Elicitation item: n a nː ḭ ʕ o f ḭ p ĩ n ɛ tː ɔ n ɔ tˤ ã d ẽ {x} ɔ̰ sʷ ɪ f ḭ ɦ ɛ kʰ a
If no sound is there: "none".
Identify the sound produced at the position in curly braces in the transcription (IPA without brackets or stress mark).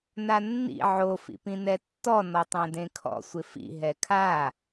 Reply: kʰ